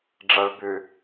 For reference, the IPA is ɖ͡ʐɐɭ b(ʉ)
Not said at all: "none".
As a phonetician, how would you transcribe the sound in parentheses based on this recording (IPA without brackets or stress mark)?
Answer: ʉ